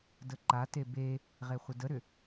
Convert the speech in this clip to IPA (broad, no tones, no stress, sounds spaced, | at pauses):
d ə ǃ a t e b e | ʁ e χʷ ə d ə ɾ ʏ